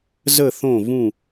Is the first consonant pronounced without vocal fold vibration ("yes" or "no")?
no